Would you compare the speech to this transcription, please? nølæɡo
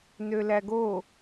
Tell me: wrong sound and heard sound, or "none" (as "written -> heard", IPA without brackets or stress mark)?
none